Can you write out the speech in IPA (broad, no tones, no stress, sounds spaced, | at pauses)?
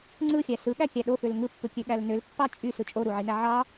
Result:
ŋ͡ǀ ɯ xʲ æ s ɯ ɠ æ kʲ æ ɗ o f ø l ŋ ɯ pː ɯ kʲ ø ɠ æ l n ø l pː ɑ t͡ʃʼ y s ɯ t͡ʃʼ o ɾ u ʕ i n æ ʕ ɑ